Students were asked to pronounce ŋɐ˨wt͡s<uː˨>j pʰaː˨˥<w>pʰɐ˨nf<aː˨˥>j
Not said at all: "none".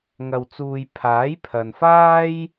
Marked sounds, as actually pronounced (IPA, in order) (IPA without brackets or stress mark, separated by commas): uː˨, j, aː˥